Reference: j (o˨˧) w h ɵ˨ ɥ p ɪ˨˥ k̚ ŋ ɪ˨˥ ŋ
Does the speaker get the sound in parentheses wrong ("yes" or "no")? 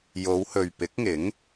no